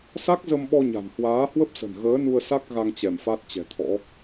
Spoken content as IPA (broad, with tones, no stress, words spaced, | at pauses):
sa˦˥k̚zə˧mɓɔ˧ ɲa̤˨˩nhwaː˨˦hwə˦˥p̚sə̤˨˩n ɣəː˨˦nu˧ə̯ sa˦˥k̚ ɣa˧ŋ t͡ɕɛ˧˩mfa˦˥t̚t͡ɕɛ̤˨˩t̪ʰɔ̰˧˥